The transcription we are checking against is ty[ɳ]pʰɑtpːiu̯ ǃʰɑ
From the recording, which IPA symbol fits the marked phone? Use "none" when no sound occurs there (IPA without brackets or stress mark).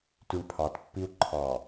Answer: ɳ